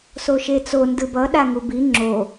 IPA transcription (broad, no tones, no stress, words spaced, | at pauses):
soʃet͡so ndɯbʌ ɗaŋubi ŋ͡ǁo